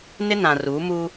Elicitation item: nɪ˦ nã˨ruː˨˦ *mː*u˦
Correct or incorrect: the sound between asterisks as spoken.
incorrect: m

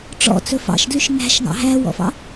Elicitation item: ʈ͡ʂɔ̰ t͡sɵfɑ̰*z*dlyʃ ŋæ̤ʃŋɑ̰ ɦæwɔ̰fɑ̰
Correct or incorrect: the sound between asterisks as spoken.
incorrect: ʃ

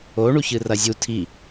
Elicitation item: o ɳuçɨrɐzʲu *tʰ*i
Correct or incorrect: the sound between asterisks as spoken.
correct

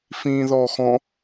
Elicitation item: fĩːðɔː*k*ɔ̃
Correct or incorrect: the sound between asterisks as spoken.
incorrect: x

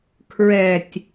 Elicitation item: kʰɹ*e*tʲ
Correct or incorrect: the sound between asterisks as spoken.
incorrect: ɛ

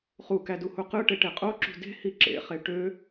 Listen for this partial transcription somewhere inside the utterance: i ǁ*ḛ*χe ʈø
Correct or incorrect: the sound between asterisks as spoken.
correct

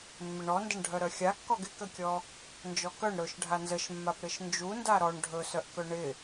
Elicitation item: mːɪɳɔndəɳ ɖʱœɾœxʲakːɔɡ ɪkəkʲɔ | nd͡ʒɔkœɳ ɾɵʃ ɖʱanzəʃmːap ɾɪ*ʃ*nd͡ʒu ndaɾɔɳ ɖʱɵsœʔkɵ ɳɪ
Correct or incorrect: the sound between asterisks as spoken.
correct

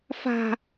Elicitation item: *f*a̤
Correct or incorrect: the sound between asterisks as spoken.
correct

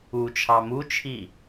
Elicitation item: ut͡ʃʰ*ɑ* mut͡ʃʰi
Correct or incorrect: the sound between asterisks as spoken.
correct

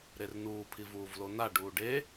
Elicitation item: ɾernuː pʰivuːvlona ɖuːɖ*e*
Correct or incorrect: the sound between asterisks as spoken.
correct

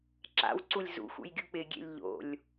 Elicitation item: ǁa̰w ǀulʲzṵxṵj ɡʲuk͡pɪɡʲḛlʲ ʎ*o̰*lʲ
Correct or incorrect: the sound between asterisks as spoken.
correct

